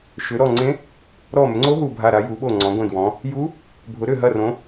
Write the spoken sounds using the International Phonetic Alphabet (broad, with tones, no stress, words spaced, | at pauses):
ʃʏ˩˧ɾɔ˧˩ŋ͡ǀẽ˧˥ | ɾɔ˧˩mʏ˩˧ŋ͡ǀo˧˥ ɦu˧˩bʱa˧˩ɾa˩˧ ju˩˧ɓo˧˩ ŋ͡ǀɔ̃˩˧ɡʷẽ˧˩dwɔ̃˩˧ | ju˧˥ | bʱʊ˩˧ɾʏ˧˩ɦɐ˧˩rõ˩˧